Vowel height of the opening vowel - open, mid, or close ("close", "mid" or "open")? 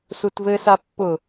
close